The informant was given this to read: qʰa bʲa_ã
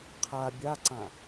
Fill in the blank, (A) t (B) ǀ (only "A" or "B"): B